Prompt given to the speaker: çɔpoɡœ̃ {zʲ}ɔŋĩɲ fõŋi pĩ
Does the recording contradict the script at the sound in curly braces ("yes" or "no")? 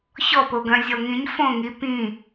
no